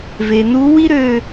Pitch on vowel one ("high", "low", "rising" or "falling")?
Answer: low